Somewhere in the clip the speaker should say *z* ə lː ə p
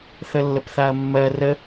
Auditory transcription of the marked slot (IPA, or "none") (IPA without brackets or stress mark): θ